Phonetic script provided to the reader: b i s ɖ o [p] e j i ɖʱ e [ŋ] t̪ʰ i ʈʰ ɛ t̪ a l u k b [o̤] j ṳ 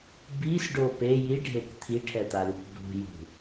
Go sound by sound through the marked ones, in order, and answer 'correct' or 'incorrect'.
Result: correct, incorrect, incorrect

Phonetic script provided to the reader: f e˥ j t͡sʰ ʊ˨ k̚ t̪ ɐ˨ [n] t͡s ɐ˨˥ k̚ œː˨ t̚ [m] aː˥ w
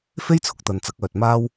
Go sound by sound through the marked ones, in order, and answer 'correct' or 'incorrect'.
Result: correct, correct

